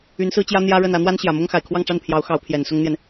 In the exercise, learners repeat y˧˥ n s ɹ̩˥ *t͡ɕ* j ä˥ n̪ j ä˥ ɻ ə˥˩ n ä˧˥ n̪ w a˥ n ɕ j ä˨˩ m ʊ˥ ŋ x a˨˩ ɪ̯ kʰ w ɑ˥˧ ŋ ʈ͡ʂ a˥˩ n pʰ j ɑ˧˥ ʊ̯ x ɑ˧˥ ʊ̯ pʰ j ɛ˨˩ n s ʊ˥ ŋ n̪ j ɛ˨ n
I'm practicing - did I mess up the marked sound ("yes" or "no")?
no